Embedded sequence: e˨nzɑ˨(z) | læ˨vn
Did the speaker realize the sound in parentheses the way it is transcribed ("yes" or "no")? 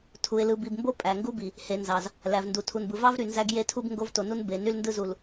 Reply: yes